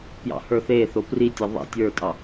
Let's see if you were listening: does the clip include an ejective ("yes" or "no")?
yes